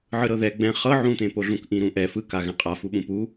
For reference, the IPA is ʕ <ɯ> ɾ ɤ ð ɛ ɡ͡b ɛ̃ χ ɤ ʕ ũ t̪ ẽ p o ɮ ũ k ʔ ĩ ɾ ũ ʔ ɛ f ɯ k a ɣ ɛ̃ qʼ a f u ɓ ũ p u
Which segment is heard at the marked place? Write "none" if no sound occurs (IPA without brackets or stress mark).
ɯ